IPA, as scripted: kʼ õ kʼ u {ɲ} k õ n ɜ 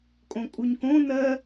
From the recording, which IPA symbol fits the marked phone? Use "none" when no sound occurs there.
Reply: ɲ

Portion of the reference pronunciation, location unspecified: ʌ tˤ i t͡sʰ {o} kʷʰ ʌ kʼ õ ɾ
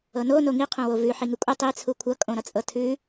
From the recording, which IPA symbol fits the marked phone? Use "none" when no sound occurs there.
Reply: u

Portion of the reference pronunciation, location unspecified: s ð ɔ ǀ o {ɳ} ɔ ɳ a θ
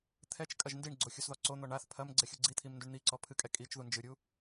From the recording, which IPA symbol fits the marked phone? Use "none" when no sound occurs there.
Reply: n̪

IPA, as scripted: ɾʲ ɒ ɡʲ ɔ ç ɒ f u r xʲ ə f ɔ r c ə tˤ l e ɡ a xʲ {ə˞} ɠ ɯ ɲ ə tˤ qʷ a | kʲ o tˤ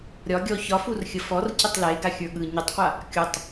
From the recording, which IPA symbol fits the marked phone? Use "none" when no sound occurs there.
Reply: ə˞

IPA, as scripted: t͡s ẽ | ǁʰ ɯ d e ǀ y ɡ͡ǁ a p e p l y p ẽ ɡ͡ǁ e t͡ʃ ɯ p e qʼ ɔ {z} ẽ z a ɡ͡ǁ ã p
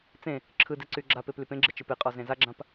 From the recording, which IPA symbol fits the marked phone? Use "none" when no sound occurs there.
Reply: z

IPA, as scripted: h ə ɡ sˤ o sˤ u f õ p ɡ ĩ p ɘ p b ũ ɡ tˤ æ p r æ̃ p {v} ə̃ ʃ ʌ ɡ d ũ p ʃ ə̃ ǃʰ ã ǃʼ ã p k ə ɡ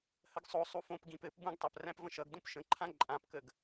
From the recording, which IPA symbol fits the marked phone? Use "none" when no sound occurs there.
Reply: v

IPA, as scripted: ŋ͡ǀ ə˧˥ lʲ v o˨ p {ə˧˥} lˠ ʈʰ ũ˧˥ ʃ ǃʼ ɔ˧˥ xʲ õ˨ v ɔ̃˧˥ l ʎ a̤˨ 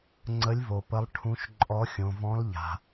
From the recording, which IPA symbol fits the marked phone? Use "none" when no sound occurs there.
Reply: ə˧˥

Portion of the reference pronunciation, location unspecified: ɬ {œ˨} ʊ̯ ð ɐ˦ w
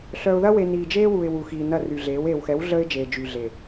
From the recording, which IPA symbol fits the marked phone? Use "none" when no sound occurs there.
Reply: œ˨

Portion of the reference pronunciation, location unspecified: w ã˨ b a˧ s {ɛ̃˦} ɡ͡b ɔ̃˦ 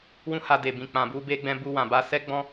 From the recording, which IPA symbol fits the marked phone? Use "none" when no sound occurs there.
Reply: ɛ˦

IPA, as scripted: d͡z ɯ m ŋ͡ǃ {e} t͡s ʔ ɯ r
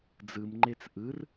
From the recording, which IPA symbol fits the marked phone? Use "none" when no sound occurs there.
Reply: e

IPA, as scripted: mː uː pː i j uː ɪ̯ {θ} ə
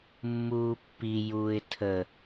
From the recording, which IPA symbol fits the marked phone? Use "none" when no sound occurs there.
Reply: tʰ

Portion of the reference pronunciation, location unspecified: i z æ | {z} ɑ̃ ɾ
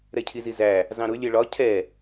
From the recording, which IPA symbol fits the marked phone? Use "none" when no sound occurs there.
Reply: z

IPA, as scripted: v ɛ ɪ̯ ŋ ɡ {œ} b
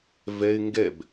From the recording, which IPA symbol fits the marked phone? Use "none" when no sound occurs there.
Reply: ɛ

